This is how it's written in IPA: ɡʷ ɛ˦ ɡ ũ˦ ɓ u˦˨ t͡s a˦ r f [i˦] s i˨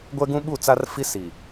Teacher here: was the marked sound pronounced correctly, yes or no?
yes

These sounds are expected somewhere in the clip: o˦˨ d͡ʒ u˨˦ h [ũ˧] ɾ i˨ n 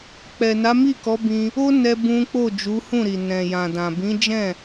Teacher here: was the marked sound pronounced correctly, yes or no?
no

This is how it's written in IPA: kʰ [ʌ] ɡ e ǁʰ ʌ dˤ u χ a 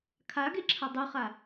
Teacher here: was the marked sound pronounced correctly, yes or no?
no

